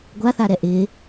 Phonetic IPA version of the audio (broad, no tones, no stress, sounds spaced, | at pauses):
ɡʷ a θ a ɾ ɛ ʔ ɪ